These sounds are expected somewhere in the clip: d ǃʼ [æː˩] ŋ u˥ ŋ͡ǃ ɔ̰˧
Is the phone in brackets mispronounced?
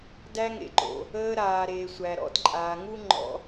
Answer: yes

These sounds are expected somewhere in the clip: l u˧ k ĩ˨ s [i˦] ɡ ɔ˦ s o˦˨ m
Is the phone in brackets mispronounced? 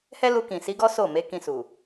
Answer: yes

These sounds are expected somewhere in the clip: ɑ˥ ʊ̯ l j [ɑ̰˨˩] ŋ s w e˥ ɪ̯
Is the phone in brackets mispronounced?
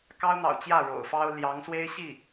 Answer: yes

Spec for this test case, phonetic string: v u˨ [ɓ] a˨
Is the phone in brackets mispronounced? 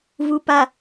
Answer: yes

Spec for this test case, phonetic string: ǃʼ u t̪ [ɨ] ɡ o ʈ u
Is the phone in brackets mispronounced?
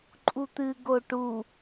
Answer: no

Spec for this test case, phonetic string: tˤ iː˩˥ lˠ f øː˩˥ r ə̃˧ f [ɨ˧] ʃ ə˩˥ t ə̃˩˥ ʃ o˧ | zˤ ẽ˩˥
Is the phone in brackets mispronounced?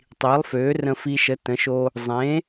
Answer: yes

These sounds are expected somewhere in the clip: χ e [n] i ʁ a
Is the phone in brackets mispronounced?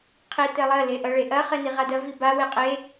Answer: no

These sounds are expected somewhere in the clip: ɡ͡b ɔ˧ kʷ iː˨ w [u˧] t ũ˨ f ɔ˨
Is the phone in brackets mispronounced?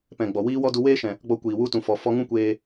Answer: no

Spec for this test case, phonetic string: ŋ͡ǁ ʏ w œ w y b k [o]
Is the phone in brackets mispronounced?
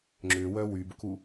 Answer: yes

